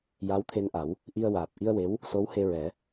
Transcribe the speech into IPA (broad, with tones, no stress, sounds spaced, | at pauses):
j a˧˥ w t̪ʰ e˧ n ʔ a˨˩˦ w | ʔ i˧ ə̯ w aː˨˩ p̚ ʔ i˧ ə̯ w e˧˥ w | s o˧˥ w h e˧ ɹ ɛ˨˩˦